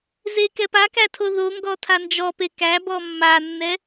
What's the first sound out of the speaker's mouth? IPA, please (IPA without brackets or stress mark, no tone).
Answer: z